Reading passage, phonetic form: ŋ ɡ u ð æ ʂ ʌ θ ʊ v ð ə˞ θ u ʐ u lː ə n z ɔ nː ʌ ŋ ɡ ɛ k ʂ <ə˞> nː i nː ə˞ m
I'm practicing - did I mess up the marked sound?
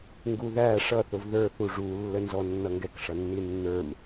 yes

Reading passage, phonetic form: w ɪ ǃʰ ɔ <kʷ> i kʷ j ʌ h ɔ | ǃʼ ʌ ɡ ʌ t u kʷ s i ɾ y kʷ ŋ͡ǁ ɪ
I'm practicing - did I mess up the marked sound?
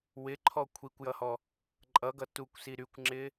yes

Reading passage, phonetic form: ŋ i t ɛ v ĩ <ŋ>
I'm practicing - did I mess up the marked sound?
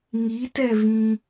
yes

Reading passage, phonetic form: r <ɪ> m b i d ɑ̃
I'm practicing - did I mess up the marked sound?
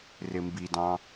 no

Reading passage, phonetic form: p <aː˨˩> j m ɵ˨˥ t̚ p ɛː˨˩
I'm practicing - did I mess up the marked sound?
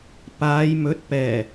yes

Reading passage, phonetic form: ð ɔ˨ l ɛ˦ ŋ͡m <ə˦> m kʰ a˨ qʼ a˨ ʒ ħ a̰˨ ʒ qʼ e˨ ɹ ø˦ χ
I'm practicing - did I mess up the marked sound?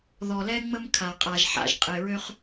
no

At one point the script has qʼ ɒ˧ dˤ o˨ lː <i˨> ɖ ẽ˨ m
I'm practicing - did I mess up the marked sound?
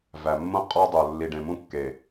no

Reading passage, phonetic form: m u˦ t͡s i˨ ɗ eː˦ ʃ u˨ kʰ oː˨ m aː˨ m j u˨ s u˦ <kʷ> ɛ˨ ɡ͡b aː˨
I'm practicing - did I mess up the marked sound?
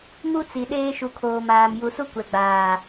no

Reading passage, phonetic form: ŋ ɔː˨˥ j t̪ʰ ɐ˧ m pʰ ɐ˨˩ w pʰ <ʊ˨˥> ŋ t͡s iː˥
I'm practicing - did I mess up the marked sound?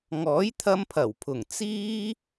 yes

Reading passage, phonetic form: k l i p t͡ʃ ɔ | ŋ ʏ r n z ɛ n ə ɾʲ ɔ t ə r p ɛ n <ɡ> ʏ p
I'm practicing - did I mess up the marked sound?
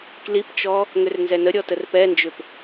yes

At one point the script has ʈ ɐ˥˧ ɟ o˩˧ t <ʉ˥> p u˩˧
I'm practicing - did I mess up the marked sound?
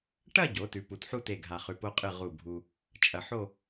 yes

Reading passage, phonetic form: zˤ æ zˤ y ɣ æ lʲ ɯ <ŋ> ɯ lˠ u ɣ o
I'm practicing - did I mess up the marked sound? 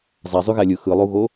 yes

